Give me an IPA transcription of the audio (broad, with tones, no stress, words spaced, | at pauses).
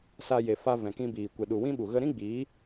sa˧je˨fa˧ vɛ̃˨kĩ˧biː˨ kʷɛ˨ɗu˨wĩ˦ɓu˨ ɣə˧ɾĩ˦ɡ͡biː˨˦